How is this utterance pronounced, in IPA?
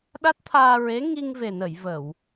ɗ a˦˥ t̚ t̪ʰ aː˧ ɹ e˧˥ ŋ i˧ ŋ v e˨˩ n ə˨˩˨ j v ə˨˩˨ w

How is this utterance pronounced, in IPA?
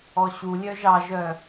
ɔ ɕ u lʲ œ ʒ ɑ ʒ œ

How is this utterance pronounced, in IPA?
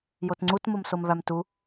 j o t ŋ͡ǀ u t m o m s o m v æ m t u

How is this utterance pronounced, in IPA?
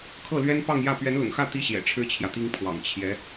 kʰ ɤ˥˩ l ɥ ɛ˥ n p ɑ˥˧ ŋ j ä˥˩ p ɥ ɛ˧˥ n l ʊ̰˨˩ ŋ x ä˥˩ t̪ i˥ ɕ j ɛ̰˨˩ ʈ͡ʂʰ ɻ̩˥ t͡ɕʰ j ä˨ t̪ i˥ ŋ pʰ w ɑ̰˨˩ ŋ t͡ɕʰ j ɛ˧˥

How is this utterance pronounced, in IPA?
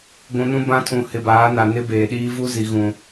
ɡʷ ũ˨ n ũ˦ b ã˦ tʰ ũ˨ h ɪ˨ b aː˨˦ n a˨ n ɪ˦ b eː˨ ɗ iː˦ v u˦ z i˨ ɣ ũ˨

